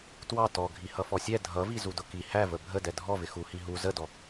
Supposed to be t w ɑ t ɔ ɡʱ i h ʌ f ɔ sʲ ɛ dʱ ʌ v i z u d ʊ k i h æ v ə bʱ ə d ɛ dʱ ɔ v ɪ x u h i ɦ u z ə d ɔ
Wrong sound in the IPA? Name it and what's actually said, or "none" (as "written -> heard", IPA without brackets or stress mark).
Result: none